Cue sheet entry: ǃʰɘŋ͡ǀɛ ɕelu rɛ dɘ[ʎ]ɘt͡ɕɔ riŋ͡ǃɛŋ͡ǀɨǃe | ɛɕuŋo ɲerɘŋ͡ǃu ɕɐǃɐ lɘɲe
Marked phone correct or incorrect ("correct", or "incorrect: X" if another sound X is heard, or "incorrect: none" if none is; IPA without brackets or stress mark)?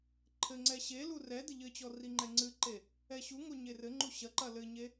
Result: correct